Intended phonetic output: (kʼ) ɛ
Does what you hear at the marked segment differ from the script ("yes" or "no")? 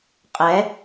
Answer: yes